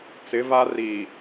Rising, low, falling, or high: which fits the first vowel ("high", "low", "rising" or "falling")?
rising